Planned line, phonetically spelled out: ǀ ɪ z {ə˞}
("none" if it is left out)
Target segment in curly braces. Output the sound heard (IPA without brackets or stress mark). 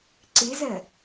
ɜ